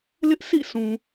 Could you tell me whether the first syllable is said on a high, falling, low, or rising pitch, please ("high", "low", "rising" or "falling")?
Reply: high